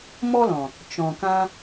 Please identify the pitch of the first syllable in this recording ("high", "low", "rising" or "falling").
high